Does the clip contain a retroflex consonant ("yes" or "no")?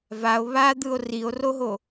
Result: no